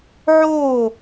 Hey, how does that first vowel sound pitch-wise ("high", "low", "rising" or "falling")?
falling